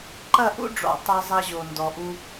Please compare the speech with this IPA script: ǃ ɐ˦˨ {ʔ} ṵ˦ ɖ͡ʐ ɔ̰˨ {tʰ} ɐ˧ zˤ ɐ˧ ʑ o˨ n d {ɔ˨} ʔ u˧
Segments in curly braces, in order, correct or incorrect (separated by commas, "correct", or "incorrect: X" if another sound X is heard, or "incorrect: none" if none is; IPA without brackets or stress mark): correct, incorrect: tˤ, correct